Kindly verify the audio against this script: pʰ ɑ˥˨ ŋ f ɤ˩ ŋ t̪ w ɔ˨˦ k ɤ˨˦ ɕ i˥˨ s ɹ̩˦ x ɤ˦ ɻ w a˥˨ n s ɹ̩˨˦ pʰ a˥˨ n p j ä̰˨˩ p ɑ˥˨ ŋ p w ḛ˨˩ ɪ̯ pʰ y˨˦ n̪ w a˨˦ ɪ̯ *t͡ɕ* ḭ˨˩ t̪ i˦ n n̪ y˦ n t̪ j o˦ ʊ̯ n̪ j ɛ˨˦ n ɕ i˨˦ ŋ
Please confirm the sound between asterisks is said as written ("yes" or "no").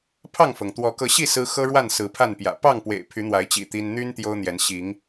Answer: yes